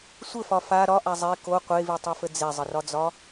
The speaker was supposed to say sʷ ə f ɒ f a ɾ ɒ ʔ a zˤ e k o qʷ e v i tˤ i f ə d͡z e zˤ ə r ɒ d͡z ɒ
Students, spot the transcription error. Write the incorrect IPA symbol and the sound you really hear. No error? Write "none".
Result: none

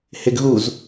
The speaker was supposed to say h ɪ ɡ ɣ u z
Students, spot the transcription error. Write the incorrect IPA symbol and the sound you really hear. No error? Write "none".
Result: none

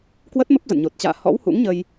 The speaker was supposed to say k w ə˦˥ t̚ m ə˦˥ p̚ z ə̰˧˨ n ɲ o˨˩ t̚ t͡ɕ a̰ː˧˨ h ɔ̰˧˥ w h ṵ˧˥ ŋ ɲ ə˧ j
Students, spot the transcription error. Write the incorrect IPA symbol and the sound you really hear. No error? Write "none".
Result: none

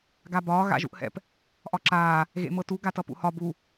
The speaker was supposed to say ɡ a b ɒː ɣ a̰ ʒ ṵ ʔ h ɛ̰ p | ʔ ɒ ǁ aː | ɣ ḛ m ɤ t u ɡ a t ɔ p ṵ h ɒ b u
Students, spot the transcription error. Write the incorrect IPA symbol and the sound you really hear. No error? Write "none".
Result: ɔ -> ʌ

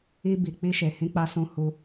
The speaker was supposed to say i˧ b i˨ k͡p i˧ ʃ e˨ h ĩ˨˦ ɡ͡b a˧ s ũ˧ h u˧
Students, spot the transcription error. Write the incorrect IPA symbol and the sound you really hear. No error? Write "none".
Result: ɡ͡b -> k͡p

